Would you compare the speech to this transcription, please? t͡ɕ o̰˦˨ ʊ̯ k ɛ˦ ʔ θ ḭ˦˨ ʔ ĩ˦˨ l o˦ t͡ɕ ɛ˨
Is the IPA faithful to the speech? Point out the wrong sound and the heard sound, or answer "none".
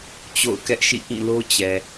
θ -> ʃ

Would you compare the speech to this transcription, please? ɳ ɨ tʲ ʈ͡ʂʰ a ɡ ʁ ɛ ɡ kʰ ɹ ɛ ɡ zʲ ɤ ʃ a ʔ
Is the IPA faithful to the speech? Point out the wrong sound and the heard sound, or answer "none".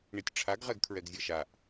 ɨ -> i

